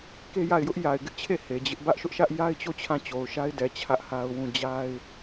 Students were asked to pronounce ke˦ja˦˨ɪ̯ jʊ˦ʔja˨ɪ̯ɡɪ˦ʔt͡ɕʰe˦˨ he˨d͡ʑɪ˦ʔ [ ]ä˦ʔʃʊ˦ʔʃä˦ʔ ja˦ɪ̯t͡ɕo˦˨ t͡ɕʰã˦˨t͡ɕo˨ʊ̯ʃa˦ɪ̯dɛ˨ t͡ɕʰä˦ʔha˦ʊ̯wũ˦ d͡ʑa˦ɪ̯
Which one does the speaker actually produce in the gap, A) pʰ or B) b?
B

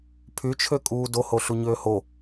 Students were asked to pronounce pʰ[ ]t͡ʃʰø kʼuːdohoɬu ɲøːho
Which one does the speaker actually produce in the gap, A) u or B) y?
B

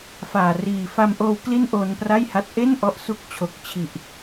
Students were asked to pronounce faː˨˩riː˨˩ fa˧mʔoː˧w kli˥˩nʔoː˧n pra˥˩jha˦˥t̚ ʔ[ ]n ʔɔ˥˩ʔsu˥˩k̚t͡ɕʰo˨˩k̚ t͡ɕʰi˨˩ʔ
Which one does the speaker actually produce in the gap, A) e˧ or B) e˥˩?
B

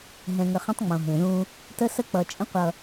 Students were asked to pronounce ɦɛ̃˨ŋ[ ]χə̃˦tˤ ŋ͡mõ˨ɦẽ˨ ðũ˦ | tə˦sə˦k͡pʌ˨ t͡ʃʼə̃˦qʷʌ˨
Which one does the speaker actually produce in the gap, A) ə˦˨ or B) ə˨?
B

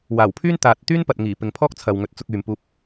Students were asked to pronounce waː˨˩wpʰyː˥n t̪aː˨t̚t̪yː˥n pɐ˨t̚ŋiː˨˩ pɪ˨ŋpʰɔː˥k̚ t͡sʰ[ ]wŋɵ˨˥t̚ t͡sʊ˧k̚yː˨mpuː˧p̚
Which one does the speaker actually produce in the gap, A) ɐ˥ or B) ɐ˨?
B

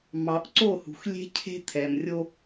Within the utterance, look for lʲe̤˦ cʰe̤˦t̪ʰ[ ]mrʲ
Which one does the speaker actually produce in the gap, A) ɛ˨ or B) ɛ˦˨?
A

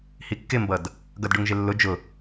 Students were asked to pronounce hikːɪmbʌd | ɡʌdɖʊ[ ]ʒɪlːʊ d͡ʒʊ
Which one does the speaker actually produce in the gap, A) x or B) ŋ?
B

